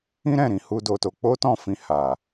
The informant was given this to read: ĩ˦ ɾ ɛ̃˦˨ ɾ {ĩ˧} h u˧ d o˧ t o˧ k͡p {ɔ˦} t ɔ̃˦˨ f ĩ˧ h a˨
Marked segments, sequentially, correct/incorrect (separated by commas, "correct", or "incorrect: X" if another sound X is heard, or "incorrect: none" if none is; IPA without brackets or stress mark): correct, incorrect: o˦